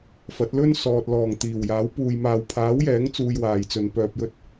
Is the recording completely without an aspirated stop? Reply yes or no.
no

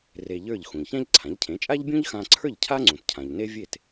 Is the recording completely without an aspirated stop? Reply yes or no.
no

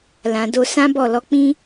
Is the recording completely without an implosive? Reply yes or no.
yes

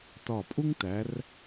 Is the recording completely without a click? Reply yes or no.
yes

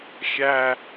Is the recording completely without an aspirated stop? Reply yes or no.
yes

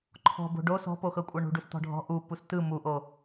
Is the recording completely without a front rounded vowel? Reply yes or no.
yes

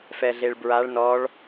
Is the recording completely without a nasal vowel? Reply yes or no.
yes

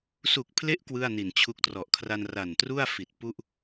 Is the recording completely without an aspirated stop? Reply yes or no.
no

